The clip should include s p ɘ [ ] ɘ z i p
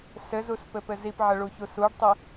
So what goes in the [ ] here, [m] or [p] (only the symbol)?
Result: p